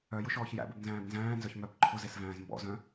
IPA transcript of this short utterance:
œ j ʊ ʃ ɔː ç j æ̰ b ɨ b n z æ̃ː b n z æ̃ː n z œ ç m œ b ǃʰ ʊ z e s v æ̃ː z m b ɔ̰ z œ̃

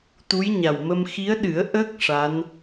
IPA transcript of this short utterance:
t̪ u˧˥ j ɲ a˨˩ w m ə˧ m x i˧˥ ə̯ ɗ ɨ˨˩˦ ə̯ ʔ ə˦˥ k̚ ʂ a˧˥ n

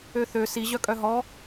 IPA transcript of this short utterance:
ø θ ø s i ʑ œ kʼ œ ɦ ɔ

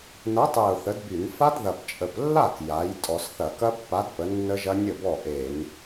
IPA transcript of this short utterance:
n ɐ˨˥ tˤ e˨˩ ʊ̯ θ ə˨˥ d b y˧˩˧ n f a˦˥ d ð ɐ˨˩ p t͡ʃʼ ə˨˩ p lː a˥˩ k j a˩˧ j tʼ ɔ˧˩˧ s θ ɐ˧˩˧ k ɐ˦˥ pː a˨˥ d p ə˨˥ nː ə˦˥ ʒ ɐ˦˥ nʲ ə˥˩ b ɔ˥˩ ʔ e˧˩˧ n

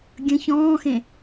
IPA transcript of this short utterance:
ɡʲ ə̃ ç ɔ̃ː x ẽ

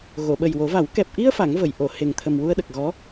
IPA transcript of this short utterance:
ɣ o˨˩˨ ɓ ə˨˩ j w o˨˩˦ v a˨˩˦ w k ɛ˨˩ p̚ ʔ i˧ ə̯ f a˨˩˦ ŋ v ə˨˩˨ j ʔ o˨˩˨ h e˨˩ ŋ t̪ʰ ə˨˩ m w u˧ ə̯ ɗ ə˨˩ k̚ ɣ ɔ˧˥

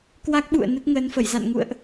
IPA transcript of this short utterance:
k w a˦˥ k̚ ɓ ṵ˧˨ ə̯ n ə˦˥ t̚ ŋ əː˨˦ n f ə˧˩ j z a̰˧˨ n ŋ ṵ˧˨ ə̯ ʔ

